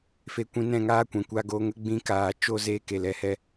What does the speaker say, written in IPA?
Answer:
f e˦ kʷ ĩ˦ n ɛ̃˦˨ ŋ aː˦ kʷ ɛ̃˨ kʷ a˦ ɡ oː˦ ŋ ə˦ ɡ͡b ĩ˧ k aː˨ t͡ʃ o˦ z e˧ k e˨ l ɛ˦˨ h ɛ˦

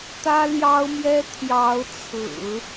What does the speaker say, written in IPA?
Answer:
t̪ ä˥ l j ɑ˥ ʊ̯ m j ɛ˥ t̪ʰ j ɑ˧˥ ʊ̯ t͡sʰ ɹ̩˨˩˦

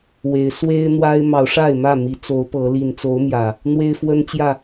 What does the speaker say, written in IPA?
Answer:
w e˨˦ ɪ̯ s w e˦ ɪ̯ n̪ w a˦ ɪ̯ m ɑ˨˦ ʊ̯ ʂ a˥˨ ɪ̯ m ä˥˨ m i˨˦ t͡s o˨˦ ʊ̯ p ɤ˨˦ l i˨˩ n t͡s o˨˦ ʊ̯ m j ä˨˩ | n̪ w e˦ ɪ̯ f w ə˦ n t͡ɕ j ä˥˨

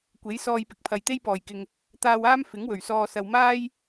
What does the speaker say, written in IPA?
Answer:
kʷ e˨˥ j s ɔː˧ j p ɪ˨ k̚ pʰ ɐ˨ j t̪ e˥ j p ɔː˨˩ j k ɪ˨ ŋ | t̪ aː˧ w aː˥ m f ɪ˨˥ ŋ w ɵ˨˩ ɥ s ɔː˧ s ɐ˨ w m aː˥ j

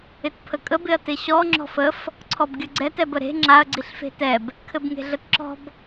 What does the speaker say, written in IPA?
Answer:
ɪ t pʰ ə kʼ ə b ɪ ɐ̯ t ɪ ɕ ɔ ŋ͡ǁ ɔ̤ f ə f | ǀʰ ɔ b ɡʲ ə ɡ͡ǀ ɛ t ɛ b ə ɾ e̤ ŋ͡ǁ a ɐ̯ ɡ͡ǀ i ɬ f e̤ t ɛ b | kʰ ɘ b ŋ e̤ ɮ ə t ǁ ɔ̤ b

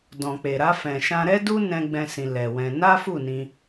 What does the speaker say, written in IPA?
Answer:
d ɔ̃˨ k͡p e˨ ɾ a˧ f ɛ̃˨ ʃ ã˧ ɾ ɛ˦ d u˦ n ɛ̃˦ ɡ͡b ɛ̃˦ s ĩ˧ l ɛ˨ w ɛ̃˧ n a˦ f u˦˨ n ĩ˧

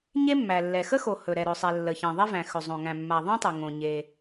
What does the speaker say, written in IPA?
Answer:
ɲ e˥ mː æ˩ lː ɛ˩ x ə˥ x o˩ h ɵ˩ ɾ ɛ˩ ɾ ɵ˩ sˤ ɛ˩ lː ə˩ ç ẽ˩ ðˤ e˥ v æ̃˩ x ɵ˩ zˤ õ˩ ŋ æ̃˩ mː a˩ ðˤ ẽ˥ tˤ ɨ˩ ŋ õ˩ ɲ e˩

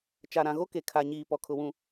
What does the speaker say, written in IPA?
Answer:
t͡ʃ a˨ ɾ ã˨ ɣ o˦ k e˨ kʰ a˨ ɲ iː˨ p ɔ˨ kʰ ʊ˨ w ũ˨

